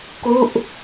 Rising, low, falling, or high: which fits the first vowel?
falling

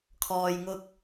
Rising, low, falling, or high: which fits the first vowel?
low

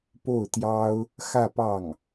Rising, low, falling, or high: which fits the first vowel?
falling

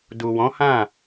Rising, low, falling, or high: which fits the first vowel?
low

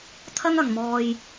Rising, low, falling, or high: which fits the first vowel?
high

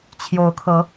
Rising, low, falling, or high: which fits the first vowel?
rising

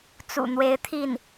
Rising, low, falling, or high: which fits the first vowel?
low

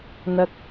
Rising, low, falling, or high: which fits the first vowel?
high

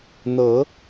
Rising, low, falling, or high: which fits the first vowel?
rising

